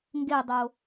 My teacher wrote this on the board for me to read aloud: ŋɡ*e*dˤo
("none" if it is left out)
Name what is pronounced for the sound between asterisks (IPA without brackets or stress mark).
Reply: e